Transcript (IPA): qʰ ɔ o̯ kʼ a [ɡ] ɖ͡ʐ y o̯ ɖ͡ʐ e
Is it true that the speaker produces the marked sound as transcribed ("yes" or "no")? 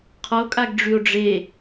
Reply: yes